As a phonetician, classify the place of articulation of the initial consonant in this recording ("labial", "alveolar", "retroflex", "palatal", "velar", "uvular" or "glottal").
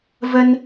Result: labial